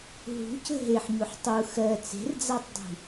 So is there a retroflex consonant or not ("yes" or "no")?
no